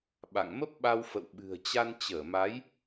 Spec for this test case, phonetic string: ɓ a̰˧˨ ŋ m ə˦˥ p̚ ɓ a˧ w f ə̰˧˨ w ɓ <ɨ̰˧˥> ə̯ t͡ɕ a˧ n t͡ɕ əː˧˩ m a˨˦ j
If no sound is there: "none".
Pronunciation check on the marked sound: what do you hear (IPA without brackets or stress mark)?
ɨ̤˨˩